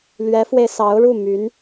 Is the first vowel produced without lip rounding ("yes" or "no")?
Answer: yes